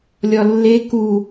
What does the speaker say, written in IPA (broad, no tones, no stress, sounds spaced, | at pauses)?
lʲ ɒ lː e k u